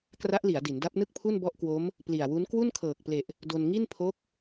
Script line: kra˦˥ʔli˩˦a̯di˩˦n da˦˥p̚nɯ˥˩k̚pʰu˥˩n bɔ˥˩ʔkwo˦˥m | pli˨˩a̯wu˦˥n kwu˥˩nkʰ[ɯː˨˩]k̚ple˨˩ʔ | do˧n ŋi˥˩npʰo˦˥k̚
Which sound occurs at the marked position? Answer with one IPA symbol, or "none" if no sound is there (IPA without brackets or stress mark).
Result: ɤː˨˩